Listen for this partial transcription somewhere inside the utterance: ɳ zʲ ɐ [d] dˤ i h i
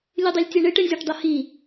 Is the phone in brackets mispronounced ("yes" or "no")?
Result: yes